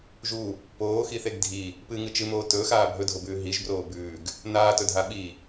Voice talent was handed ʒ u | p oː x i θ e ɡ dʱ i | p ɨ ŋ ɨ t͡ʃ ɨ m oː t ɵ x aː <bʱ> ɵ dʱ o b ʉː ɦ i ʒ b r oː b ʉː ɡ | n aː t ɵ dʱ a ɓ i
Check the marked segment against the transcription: correct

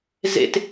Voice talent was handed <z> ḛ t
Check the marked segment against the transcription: correct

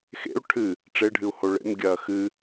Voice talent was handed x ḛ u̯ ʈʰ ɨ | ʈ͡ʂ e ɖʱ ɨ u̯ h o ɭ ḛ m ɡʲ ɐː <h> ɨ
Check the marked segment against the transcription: incorrect: x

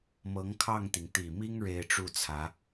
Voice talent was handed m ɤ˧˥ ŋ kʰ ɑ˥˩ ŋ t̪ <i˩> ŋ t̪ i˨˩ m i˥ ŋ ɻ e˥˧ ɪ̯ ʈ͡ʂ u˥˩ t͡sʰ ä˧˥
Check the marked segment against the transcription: correct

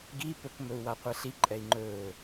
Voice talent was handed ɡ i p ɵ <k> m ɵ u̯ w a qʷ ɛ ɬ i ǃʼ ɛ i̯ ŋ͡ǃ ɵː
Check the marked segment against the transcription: correct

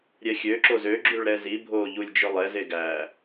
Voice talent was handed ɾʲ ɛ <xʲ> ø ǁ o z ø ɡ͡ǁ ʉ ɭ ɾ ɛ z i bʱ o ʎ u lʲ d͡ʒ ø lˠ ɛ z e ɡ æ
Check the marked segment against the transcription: correct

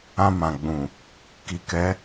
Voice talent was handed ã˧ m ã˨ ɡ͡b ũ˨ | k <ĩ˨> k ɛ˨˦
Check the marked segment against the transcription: incorrect: i˨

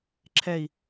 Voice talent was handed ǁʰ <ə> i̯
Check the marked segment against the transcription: incorrect: ɛ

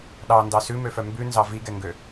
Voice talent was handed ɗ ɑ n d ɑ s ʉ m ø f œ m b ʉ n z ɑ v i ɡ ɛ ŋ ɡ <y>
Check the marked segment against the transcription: incorrect: ø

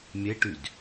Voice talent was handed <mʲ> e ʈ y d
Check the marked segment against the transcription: correct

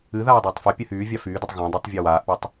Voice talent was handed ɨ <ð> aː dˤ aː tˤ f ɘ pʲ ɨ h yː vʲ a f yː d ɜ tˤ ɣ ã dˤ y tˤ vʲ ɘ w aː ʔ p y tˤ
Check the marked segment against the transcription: correct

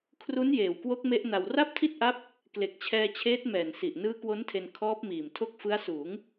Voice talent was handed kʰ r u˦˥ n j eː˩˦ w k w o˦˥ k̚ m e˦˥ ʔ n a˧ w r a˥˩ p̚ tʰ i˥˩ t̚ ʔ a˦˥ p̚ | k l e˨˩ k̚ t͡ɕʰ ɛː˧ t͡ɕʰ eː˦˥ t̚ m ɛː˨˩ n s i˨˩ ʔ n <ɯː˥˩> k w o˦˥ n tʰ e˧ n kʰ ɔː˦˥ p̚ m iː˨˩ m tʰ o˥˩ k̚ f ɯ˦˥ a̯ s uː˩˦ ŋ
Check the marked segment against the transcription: incorrect: ɯː˦˥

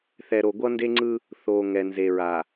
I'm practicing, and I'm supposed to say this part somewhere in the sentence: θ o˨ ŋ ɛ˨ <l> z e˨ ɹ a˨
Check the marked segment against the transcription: incorrect: n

